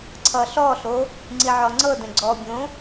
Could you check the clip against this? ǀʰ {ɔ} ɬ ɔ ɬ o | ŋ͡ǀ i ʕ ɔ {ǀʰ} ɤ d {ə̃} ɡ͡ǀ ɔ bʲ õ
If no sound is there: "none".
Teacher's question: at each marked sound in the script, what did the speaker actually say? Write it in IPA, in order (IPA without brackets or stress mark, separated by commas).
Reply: ʌ, ŋ͡ǀ, ə̃